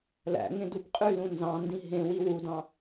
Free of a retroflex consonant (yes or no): yes